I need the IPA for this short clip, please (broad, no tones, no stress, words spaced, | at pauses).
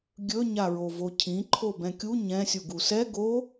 ɡʲɵ ɲaɹovocʰĩ ǃʰobɛ̃kʲu ɲɛ̃ sʲuɡusɛ ɡo